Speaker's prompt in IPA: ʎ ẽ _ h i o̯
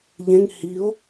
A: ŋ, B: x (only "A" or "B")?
A